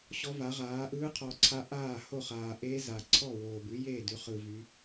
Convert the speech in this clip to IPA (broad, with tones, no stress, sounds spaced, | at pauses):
ɕ ɔ˧˥ v a˩˥ ʁ aː˩˥ ʔ ɯː˧˥ qʰ ɔ˨ ǀʰ a˧˥ ʔ aː˥˩ h o˥˩ χ aː˨ ʔ eː˧˥ z a˨ ǀʰ ɔ˥˩ w oː˨ b ʉ˩˥ j eː˥˩ d ʉ˩˥ χ ɯ˨ v y˧˥